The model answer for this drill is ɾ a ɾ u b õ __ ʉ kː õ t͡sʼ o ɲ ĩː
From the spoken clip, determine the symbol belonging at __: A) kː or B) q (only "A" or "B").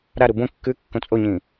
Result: A